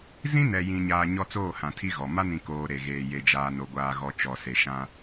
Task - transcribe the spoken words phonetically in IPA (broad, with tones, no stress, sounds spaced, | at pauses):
z ĩ˦ n ɛ˨ j ĩ˨ ɲ aː˨ ɲ ɔ˦ t͡s oː˦˨ h ã˨ tʰ i˦ ɣ ɔ˨ m a˦ n ĩ˨ k oː˨ ɾ e˨ ɣ eː˨ j e˨ d͡ʒ aː˨ n o˨ ɡʷ aː˨ ɣ ɔ˨ t͡ʃ ɔ˨ s e˨ ʃ ã˦